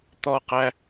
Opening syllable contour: high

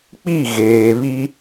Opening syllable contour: falling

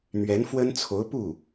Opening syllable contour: rising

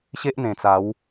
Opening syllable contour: high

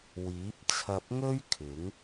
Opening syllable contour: rising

